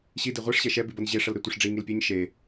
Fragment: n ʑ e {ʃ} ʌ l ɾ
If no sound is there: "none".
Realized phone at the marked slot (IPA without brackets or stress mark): ʂ